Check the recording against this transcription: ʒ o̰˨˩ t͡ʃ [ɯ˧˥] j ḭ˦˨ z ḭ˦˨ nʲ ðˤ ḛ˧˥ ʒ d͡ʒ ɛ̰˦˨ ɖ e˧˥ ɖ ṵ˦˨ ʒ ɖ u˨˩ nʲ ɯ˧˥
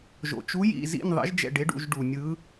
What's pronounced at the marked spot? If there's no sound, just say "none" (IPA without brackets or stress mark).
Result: u˧˥